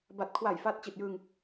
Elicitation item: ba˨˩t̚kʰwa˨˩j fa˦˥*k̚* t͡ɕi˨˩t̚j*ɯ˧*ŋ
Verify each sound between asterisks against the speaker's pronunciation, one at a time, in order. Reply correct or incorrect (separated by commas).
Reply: incorrect, correct